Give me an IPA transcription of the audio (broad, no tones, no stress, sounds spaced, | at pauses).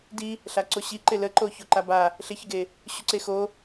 d i | ɬ a ǀ o ɕ i ǃ ɪ l ə ǃ o ç o ǃ a b a | ɬ ɪ ç ɪ ɡ e | ɕ u ǀ e x o